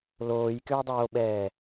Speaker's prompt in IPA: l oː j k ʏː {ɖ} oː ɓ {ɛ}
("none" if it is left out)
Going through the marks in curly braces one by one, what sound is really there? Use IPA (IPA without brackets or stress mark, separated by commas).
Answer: dˤ, ɛː